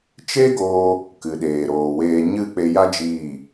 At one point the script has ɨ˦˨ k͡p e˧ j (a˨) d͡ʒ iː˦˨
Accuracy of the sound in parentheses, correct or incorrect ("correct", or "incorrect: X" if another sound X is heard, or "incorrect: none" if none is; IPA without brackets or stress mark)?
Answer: incorrect: a˦